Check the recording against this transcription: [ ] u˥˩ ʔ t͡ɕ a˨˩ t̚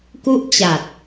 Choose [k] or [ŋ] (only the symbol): k